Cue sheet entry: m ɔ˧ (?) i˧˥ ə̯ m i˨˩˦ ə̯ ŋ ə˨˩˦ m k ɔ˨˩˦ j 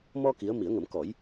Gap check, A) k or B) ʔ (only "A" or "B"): A